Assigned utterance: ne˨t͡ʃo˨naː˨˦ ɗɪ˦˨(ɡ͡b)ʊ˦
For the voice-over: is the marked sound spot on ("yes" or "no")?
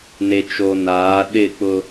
no